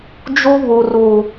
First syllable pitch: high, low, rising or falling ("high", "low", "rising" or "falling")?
high